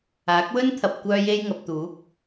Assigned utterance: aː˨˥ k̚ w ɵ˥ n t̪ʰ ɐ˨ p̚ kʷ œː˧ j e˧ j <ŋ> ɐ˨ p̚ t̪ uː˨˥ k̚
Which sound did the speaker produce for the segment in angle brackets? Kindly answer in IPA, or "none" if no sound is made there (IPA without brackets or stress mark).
ŋ